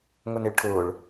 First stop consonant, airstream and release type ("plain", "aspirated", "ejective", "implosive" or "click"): aspirated